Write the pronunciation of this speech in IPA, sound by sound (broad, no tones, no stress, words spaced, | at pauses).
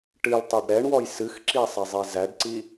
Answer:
ʈɨltˤæɖ ɾɛɳwɔj sɨxǁi sˤɛzˤizæɖǀi